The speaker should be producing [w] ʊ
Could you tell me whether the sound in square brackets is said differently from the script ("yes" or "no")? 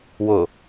no